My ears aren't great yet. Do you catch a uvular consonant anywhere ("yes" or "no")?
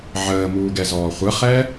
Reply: yes